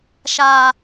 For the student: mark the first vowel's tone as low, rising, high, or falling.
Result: low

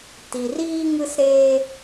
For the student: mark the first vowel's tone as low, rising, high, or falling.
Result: low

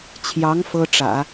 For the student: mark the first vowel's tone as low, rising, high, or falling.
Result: rising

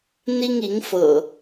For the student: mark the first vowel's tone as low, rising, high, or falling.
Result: high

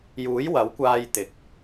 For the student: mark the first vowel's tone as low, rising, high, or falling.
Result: rising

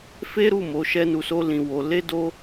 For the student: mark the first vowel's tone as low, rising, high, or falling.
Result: high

